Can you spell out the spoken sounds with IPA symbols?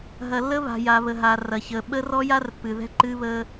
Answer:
ɦ ɐ˨ lː ə˦ β a̤˨ j a˨ β ə˨ ɦ a˨ r ɐ˨ ç əː˨ ɓ ə˦ r ɔ˦ j a˦ r pː ɨ˨ ð ɛ̤˦ ǃ ɨ˦ β əː˦

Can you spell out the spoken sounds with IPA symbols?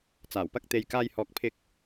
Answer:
t͡s aː˨˩ w p ɐ˥ k̚ t̪ e˧ j k aː˥ j h ɔː˧ k̚ pʰ ɪ˥ k̚

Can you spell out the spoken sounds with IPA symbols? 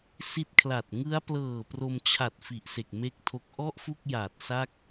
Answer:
s i˦˥ t̚ kʰ l a˨˩ t̚ ŋ ɯ˦˥ a̯ p l ɤː˨˩ p r o˧ m t͡ɕʰ a˨˩ t̚ f i˨˩ ʔ s e˨˩ k̚ m e˦˥ k̚ tʰ o˦˥ k̚ ʔ ɔ˥˩ ʔ f u˥˩ k̚ j aː˨˩ t̚ s a˥˩ k̚

